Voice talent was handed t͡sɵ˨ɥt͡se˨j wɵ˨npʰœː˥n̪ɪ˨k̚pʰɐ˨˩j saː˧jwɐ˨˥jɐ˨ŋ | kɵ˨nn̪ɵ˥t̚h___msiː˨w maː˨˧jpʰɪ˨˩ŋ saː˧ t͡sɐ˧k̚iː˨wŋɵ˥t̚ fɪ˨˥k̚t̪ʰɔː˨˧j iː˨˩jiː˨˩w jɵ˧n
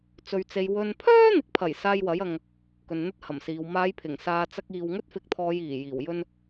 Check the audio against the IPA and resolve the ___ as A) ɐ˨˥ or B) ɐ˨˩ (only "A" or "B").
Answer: B